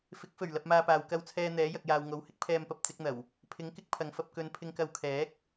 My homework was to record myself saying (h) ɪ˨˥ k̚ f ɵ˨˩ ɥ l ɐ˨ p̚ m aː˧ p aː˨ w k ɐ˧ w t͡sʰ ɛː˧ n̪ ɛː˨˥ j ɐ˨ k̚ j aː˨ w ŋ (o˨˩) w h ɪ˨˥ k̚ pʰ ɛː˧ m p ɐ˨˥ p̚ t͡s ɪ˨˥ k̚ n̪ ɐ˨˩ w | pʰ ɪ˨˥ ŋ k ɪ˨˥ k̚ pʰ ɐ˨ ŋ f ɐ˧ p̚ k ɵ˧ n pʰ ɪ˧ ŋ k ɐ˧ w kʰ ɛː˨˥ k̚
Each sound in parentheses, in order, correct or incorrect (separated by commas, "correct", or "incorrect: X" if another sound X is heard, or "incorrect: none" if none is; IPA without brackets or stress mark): incorrect: f, incorrect: o˨˥